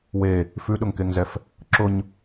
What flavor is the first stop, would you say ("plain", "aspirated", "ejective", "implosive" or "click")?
implosive